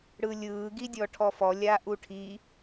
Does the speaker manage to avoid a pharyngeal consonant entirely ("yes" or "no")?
yes